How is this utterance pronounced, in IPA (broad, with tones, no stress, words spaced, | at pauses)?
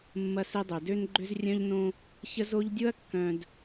mːɐ˦se˦dˤø˨ dø˦nɡ͡ǃʏ˦zrʲœ̃˦ʎnõ˦ | çə˦zo˦ʎdʲʊ˦ɐ̯ kːœ̃˨d